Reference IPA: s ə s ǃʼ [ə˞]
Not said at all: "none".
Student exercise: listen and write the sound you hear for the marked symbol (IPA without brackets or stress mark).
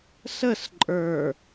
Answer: ə˞